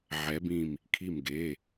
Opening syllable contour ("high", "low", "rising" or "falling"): rising